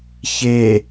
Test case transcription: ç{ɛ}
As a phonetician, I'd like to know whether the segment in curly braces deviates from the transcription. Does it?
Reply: yes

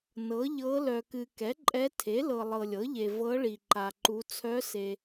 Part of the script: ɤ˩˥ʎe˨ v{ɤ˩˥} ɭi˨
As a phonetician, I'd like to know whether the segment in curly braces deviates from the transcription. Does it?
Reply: yes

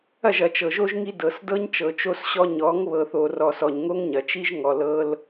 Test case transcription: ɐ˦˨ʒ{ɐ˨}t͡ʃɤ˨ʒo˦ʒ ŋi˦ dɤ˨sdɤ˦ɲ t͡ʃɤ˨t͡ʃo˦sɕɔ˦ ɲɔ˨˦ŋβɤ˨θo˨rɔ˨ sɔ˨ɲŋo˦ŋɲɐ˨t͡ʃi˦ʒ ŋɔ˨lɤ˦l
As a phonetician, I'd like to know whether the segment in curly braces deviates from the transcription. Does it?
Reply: no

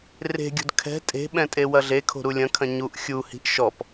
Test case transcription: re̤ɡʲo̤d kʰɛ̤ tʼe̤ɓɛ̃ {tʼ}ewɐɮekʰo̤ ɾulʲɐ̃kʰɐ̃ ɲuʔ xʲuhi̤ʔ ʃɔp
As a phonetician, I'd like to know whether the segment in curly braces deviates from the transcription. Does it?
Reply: no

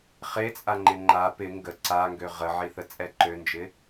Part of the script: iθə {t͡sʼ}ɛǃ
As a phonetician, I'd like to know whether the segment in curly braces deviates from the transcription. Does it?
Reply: no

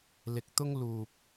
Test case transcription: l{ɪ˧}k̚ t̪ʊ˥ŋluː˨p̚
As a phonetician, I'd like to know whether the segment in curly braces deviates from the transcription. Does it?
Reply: no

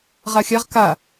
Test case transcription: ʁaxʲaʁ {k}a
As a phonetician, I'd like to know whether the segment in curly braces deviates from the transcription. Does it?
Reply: no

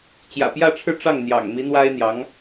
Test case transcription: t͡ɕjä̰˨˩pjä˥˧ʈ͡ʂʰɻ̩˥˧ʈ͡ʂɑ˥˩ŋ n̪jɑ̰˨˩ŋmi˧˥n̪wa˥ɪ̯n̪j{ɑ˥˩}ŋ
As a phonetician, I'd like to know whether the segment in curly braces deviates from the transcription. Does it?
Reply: yes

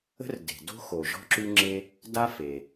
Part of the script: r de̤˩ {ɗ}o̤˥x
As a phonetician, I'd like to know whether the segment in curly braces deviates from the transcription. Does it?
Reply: yes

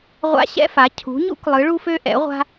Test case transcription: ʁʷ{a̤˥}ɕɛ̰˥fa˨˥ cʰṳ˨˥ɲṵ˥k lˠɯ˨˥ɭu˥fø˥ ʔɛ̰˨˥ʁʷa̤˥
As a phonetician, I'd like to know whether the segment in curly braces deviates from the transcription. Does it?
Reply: yes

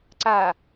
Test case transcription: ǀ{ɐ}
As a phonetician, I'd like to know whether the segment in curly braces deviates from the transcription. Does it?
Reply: yes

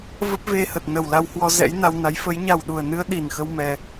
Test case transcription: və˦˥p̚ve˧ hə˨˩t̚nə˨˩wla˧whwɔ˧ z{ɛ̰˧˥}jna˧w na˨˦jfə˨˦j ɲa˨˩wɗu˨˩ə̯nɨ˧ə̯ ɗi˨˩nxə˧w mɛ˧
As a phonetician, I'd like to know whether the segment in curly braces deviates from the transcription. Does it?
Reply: no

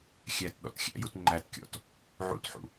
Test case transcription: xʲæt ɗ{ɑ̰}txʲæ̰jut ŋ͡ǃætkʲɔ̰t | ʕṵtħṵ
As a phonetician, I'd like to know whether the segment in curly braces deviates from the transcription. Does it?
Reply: yes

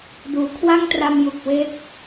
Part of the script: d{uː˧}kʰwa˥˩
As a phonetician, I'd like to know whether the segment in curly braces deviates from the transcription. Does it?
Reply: yes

